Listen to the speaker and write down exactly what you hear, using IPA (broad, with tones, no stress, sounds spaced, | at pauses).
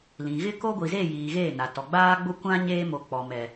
l ĩ˨ ɣ ɪ˦ k o˦ ɡʷ i˨ z e˦˨ j iː˨ ɣ eː˦˨ n a˨ t ɔ˨ ɡ͡b aː˦ ɡ͡b ʊ˦ kʷ ã˦ ɲ eː˦ m o˨˦ k͡p ɔ˨ m ɛ˨